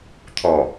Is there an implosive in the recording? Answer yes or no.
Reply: no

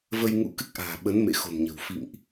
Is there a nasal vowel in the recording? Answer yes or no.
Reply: no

